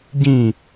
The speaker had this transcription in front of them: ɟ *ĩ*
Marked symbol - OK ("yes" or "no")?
yes